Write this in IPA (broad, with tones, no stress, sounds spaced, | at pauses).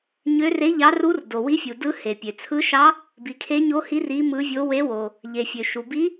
ɲ ø˧˥ r e˧˥ ʎ ɑ˧˥ r u˧˥ r d o˩ w i˧˥ fʲ u˩ d ɯ˧˥ h e˩ pʲ ø˩ t͡sʰ ɯ˧˥ ʃ ɑ˧˥ | b i˩ kʰ e˧˥ ɲ o˧˥ h i˧˥ r i˧˥ m ɯ˧˥ vʲ o˧˥ w e˧˥ w o˩ | ʎ e˩ fʲ ø˩ ʃ u˩ b i˧˥